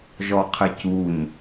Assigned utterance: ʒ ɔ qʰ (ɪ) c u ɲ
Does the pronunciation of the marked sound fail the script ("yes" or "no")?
no